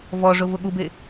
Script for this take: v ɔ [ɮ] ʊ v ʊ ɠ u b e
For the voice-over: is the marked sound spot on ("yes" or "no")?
no